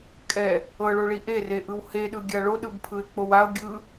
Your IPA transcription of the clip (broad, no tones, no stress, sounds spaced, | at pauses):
kʼ ɛ | ɤ ɭ o ɭ i ʔ e r e ʔ ɯ w h e ɗ ɯ ɡʲ a ɭ o ɗ ɯ b pʰ ɯ e̯ k͡p o w a o̯ ɡʲ ɯ